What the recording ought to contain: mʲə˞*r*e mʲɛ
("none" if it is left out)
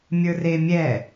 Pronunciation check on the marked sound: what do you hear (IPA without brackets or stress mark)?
r